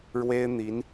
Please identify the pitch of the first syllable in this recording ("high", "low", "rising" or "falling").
high